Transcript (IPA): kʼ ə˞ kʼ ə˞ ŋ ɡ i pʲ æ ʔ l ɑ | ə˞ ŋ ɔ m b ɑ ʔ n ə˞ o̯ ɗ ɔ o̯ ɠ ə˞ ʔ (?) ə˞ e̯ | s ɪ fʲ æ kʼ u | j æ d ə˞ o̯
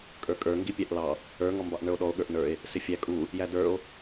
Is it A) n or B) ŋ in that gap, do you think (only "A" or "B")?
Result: A